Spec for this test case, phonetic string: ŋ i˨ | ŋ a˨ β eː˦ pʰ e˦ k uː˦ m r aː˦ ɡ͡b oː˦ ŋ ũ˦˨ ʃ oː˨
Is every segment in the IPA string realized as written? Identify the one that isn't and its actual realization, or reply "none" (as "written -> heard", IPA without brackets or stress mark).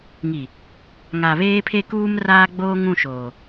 none